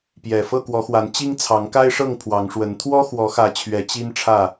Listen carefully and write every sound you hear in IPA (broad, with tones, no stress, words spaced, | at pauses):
pjɛ˨˩ fɤ˥˨kwɔ˨˦xwa˨˦n t͡ɕi˦ŋt͡sʰɑ˨˦ŋka˦ɪ̯ʂɤ˥˨ŋ pʰwɑ˨˦ŋʂwə˨˦n t̪ʰwɔ˦xwɔ˨˦xä˨˦ t͡ɕʰɥɛ˨˦t͡ɕi˦n ʈ͡ʂʰä˥˨